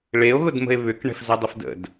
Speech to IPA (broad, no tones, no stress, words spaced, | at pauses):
ɭeo̯ɣʊdmə̤e̯ βʏkɳɛ̤fzədˤʊf də̰d